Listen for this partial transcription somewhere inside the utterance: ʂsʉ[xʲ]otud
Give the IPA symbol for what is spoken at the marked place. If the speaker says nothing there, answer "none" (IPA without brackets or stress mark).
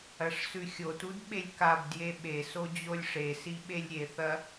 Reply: xʲ